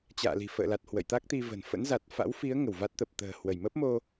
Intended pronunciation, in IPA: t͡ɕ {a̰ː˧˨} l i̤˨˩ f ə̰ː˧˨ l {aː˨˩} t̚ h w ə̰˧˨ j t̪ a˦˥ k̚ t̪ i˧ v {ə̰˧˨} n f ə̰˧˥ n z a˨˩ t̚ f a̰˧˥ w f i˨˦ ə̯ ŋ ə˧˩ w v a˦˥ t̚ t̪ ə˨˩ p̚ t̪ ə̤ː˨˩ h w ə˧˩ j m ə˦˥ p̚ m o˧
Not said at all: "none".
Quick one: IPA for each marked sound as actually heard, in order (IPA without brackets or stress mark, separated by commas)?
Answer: a̰ː˧˨, a˨˩, ə̤˨˩